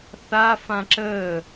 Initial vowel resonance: oral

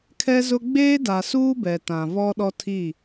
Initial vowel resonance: oral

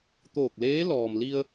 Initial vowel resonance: oral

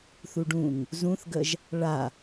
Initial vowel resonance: oral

